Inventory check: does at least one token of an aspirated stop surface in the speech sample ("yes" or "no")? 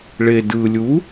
no